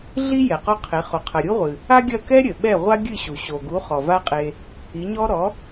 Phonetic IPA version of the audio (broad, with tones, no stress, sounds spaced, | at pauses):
ɮ i˥ j ɛ˩ q ɔ˥ qʰ e˩˥ χ o˩ qʰ ɐ˩ ɾʲ u˥ ʁʷ ɨ˩ | a˥ ɡʲ ɐ˥˩ k ɛ˥ ɾʲ ɘ˩ ɓ ɛ˥˩ ʁʷ a˥ ɡʲ ɨ˥˩ ɕ u˩ ɕ o˩ ɡ u˩˥ χ ɔ˩ v a˥ qʼ e˧ | i˩˥ ɲ ɔ˥ ɾ ɔ˩˥